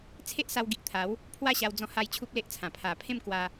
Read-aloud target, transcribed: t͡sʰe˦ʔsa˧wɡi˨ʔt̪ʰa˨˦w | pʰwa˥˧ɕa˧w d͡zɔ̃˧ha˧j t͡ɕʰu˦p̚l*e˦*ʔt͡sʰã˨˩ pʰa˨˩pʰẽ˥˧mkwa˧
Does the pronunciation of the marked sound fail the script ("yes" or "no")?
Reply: no